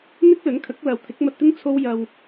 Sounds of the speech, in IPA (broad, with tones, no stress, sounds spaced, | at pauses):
n̪ ɪ˥ k̚ l ɵ˨˥ n kʰ ɐ˨˥ k̚ l ɐ˨ w t̪ʰ ɪ˨˥ k̚ m ɐ˧ t̚ t̪ ɪ˥ ŋ t͡sʰ o˥ w j ɐ˧ w